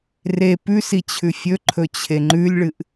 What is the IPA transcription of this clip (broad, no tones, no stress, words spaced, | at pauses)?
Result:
re pʉsi t͡ɕʰʉfʲɵǃʰɵ t͡ɕʰeŋ͡ǃʉlʲɭɨʔ